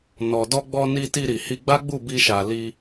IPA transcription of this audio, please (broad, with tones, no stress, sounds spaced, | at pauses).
n ɔ˨ d ɔ˧ ɡ͡b ɔ˧ n i˧ t i˧ ɾ i˨ h i˧ ɡ͡b a˦ ɡ͡b u˦˨ b i˧ ʃ a˨ l i˧